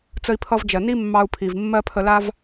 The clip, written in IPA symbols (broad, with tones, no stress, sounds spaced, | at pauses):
t͡s ə˧ i̯ pʰ ʌ˧ v d͡ʒ ɜ˩ n i˥ mː ɑ˧ u̯ pʰ i˩ v mː ɜ˥ pʰ ə˧ l a˥ v